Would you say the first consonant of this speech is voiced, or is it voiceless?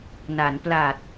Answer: voiced